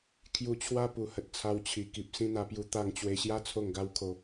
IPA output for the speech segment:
kʰ j u˧ t͡ɕʰ w a˦ p u˨˩ h ə˨ t̚ t͡sʰ a˧ w t͡ɕʰ i˨˩ k i˨ p̚ s ĩ˥˧ n̪ a˧ p j u˧ t̪ a˧ ŋ t͡ɕ w e˧ ɕ j a˦ t͡sʰ o˥˧ ŋ ɡ a˦ w kʰ o˧

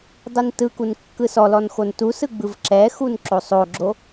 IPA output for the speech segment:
dˤ i n t ɯ k u n kː ɯ s ɔ l ɔ n x o n t u s ɯ ɡ͡b ɯ v ǁ ɛ x u n ǁ o sˤ o ɡ͡ǁ o

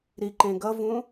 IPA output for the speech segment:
ɾ i ǃ ẽ ɡ ʌ v ũ

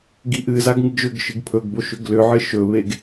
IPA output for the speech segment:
ɡ i ʔ ɨ z a ɡ ŋ ɨ ɡ ʒ ʏ ɡ ʃ ɨ ɡ pʰ ɵ ɡ b o ʃ ʏ ɡ l ʏ ʕ ɨ ʃ ɵ β e ɡ

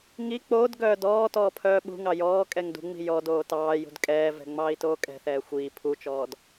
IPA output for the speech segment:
ŋ i k͡p oː d ɡ œː d ɔː t ɔː pʰ œː ɓ ṳ ŋ ɑ j ɔː kʼ ɛ ŋ d ṳ ŋ͡m i̤ j ɔ d oː t ɑː j ṳ d kʼ ɛː v ɛ̤ ŋ͡m ɑː i̯ t oː kʼ ɛ̤ θ ɛː xʷ iː pʰ u t͡ʃ ɔː d

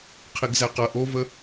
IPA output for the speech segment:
qʰ i ɡ z æ q ɐ ʔ o v ə

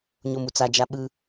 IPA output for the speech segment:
ɲ o m u t͡s a d͡ʒ a ɓ ɯ

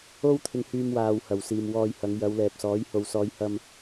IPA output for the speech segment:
o˥ w t̪ʰ ɪ˧ ŋ h yː˧ m w aː˨ w h ɐ˨˩ w s iː˨ m w ɔː˧ j h ɐ˨˧ ŋ j ɐ˨˧ w l ɛː˨ p̚ s ɔː˨˥ j h o˨ w s ɔː˨˧ j h ɐ˧ m

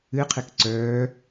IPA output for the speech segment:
ɨ qʰ e k ǀ œː

